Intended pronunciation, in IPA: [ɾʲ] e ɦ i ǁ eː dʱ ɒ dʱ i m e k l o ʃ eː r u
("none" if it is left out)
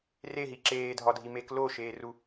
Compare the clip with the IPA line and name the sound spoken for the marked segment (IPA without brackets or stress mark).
r